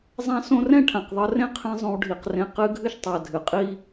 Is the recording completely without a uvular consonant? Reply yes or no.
no